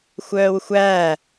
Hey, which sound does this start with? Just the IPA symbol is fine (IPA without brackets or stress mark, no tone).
xʷ